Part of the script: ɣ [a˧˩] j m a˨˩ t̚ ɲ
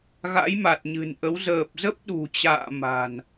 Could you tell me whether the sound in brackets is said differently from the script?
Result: yes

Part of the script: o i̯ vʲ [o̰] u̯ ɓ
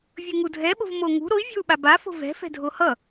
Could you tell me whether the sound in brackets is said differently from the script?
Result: yes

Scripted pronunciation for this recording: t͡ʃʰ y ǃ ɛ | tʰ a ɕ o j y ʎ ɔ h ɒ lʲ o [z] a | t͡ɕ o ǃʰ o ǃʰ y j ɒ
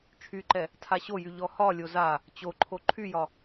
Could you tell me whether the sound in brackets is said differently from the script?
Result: no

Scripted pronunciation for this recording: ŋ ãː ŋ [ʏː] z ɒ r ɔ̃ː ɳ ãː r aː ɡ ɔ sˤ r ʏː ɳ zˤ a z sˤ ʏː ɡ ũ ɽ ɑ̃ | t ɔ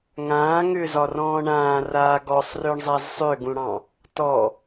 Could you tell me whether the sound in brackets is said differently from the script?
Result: no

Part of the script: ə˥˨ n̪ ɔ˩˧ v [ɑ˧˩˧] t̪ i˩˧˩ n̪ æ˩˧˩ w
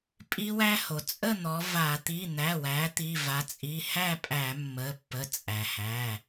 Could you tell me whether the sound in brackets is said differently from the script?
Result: yes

